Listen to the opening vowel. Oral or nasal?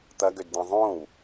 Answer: oral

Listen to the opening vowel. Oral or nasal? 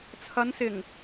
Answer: oral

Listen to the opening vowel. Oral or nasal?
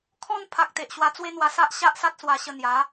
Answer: nasal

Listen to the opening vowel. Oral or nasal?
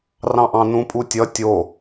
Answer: nasal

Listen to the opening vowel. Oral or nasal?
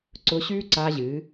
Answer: oral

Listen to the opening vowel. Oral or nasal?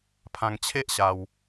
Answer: nasal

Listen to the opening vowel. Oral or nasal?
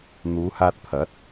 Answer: oral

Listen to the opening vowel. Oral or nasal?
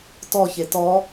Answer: oral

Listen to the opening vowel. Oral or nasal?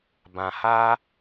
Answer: nasal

